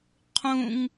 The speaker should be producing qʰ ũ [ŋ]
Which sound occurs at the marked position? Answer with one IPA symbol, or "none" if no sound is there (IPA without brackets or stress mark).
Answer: ŋ